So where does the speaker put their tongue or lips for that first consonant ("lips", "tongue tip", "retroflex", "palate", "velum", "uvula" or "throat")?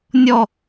tongue tip